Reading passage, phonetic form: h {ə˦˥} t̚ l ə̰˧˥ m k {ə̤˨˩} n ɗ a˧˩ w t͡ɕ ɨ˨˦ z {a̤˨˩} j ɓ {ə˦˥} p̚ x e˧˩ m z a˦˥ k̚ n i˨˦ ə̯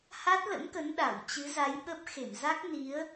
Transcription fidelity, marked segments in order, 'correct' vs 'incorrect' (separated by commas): incorrect, incorrect, incorrect, correct